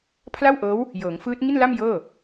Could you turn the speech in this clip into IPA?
pʰla˥˩wʔɤː˦˥w | jɤː˩˦ŋfɯː˦˥t̚ ŋi˥˩nla˥˩m jɤː˥˩

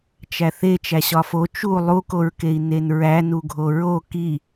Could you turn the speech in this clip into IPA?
t͡ʃæθe t͡ʃæɕɒfo t͡ʃu lˠukoɹkei̯ nenɹænuɡʱo ɹo ki

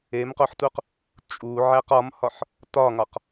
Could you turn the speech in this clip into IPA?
emqoħtuq | t͡ʃʼuʕæq ɒmhɒħ | tɒŋɒq

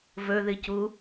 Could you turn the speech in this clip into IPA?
vɵðɨcu

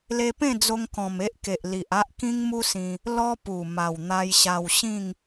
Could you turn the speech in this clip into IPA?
le˧pẽ˥˧d͡zo˧ŋ kɔ̃˨˩m e˦ʔke˨ʔli˨ʔ a˦ʔkĩ˦ŋmu˦sĩ˧ | lɔ˦pu˨˩ ma˨˩wn̪a˧jɕa˧w ɕĩ˥˧ŋ

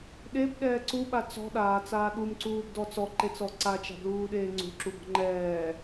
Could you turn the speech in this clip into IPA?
ɗebɗɛː ǀuɓa t͡sɔ̤ ɗaːt͡saː ɗumǀuːbdɔ t͡sɔǃet͡sɔ ǀat͡ʃa̤bluːɗeː ŋ͡ǀṳǁubɔ̤ ŋ͡ǃɛː

